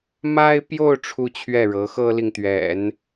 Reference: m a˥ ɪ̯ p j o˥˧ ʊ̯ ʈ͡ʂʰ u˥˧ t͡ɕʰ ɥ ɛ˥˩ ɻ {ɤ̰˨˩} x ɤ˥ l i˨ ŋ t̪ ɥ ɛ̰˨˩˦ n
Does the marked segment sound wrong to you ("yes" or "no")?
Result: yes